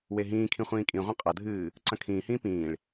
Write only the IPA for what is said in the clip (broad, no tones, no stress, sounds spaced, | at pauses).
w e ɦ ĩː kʰ ĩ χʷ ĩː kʼ ĩ ʁʷ ɐ̃ qʼ ɐ dʱ ɨː | ǀ ɐ̃ kʰ ĩː h ĩː p ĩː ɭ